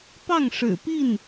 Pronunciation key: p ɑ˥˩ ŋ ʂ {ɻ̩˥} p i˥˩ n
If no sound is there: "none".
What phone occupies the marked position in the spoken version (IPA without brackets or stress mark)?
ɻ̩˨˩